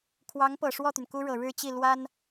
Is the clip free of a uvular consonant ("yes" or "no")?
yes